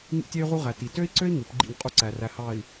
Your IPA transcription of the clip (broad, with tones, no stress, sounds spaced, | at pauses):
ŋ ḭ˦ tʲ e˦ y̯ ʁ u˦ ʁ æ˨ t i˨ t ø˦ i̯ ǀ ø˦ i̯ ŋ ɯ˨˦ p ɡ͡ǃ ḭ˦˨ ŋ qʼ u˦ ǀ æ˨ r æ˨ h ɑ˨ i̯